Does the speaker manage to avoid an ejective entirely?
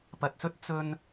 yes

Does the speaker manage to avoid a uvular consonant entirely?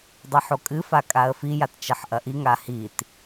yes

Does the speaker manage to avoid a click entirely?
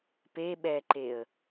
no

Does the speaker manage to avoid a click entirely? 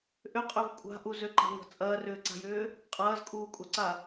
no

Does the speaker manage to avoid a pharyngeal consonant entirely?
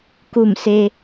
yes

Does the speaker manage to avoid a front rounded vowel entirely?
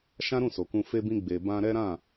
yes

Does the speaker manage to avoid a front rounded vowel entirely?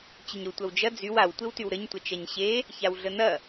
no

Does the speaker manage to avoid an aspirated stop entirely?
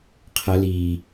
no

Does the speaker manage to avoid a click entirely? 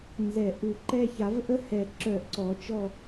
no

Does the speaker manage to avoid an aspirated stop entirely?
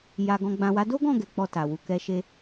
yes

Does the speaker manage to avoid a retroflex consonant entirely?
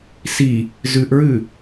yes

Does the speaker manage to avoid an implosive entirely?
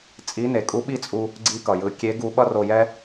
no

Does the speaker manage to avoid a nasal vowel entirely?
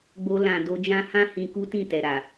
no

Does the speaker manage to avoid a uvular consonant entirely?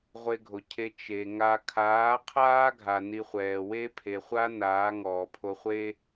no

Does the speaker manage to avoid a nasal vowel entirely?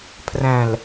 no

